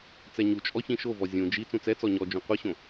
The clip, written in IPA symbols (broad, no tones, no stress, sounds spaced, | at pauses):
t͡s ɛ ɲ u t͡ʃʼ ɔ ç ĩ ʃ o v ɔ zʲ ũ d͡ʒ i t͡s ũ t͡s ɛ t͡s ɔ ɲ ɔ d͡ʒ ũ qʷ ɨ ɕ õ